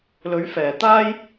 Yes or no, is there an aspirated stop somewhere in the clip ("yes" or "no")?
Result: no